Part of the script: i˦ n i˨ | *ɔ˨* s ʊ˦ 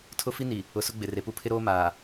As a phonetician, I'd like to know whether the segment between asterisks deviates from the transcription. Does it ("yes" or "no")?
yes